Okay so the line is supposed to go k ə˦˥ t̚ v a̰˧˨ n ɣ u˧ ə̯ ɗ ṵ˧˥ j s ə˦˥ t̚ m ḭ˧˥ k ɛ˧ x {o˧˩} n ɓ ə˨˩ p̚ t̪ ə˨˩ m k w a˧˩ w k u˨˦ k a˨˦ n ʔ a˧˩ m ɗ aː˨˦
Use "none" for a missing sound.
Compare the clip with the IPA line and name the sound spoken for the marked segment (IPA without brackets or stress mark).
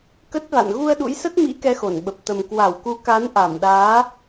o˧˩